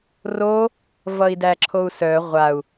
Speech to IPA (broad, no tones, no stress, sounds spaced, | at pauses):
r o | v ʌ i̯ d æ ǁʰ o u̯ s œ ʁʷ a u̯